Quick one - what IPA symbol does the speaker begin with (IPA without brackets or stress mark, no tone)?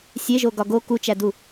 sʲ